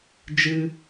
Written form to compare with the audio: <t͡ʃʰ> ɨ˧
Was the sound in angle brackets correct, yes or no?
no